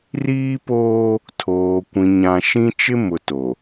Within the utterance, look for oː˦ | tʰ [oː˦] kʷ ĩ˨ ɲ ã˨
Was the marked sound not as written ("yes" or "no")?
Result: yes